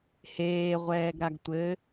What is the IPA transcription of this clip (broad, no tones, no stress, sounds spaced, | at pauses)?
h eː ʁʷ ɛː ɡ ɾ a ɡ tʷ ɘ